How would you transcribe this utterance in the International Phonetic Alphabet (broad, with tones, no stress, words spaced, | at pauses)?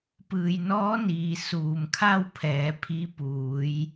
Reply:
pɯː˩jnɔː˧˥niː˩ suː˩mkʰa˥˨wpʰɛː˩˧ pʰi˧˥ puː˩˧j